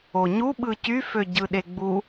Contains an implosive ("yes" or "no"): yes